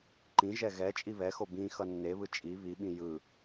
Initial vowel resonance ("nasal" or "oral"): nasal